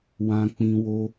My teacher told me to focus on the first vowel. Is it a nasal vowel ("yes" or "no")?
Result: yes